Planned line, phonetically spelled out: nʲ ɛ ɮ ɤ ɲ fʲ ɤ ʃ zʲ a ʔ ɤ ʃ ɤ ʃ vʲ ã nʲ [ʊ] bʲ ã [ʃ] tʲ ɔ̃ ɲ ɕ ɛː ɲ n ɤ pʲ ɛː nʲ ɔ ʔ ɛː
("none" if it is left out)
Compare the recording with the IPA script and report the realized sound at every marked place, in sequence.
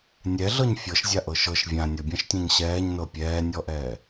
ʊ, ʃ

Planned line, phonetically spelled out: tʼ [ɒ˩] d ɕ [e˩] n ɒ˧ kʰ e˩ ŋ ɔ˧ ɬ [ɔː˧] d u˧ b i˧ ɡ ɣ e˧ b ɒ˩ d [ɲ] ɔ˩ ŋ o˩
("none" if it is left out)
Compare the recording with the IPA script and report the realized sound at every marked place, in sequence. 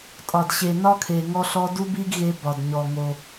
ɒ˩, e˩, ɔ˧, ɲ

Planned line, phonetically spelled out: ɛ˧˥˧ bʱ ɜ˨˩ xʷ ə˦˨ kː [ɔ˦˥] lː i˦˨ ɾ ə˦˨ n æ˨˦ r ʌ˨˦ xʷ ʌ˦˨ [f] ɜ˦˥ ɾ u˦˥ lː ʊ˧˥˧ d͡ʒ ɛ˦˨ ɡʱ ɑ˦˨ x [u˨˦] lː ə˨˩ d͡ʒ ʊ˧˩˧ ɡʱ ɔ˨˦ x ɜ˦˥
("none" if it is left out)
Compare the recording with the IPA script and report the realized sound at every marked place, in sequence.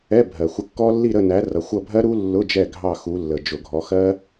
ɔ˦˥, bʱ, u˨˦

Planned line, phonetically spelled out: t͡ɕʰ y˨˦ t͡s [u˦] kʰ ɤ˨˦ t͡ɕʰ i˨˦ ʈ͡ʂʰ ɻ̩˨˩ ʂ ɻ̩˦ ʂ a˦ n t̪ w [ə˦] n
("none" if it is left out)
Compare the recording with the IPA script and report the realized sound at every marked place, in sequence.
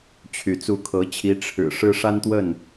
u˨˦, ə˥˨

